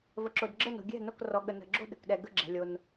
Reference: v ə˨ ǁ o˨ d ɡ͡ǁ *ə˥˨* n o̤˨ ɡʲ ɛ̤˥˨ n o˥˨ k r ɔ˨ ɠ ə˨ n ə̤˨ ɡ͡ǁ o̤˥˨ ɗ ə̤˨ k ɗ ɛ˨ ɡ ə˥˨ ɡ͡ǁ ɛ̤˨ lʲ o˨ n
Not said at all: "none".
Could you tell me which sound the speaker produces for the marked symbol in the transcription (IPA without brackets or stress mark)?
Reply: ə˥˨